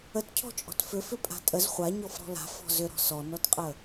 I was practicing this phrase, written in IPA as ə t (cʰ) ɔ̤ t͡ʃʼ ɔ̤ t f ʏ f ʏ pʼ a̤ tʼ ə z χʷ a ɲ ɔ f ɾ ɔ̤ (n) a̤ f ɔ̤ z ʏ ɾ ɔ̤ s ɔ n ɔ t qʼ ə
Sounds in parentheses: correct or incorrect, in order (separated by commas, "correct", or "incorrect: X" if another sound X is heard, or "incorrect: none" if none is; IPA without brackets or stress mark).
correct, incorrect: l